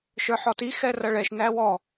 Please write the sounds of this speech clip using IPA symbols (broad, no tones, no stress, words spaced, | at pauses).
ʃə˞ħɔti xɛrʌɭɛʃ næwɔ